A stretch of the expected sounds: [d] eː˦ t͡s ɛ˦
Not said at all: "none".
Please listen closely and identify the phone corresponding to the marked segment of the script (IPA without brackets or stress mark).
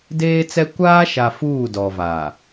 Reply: d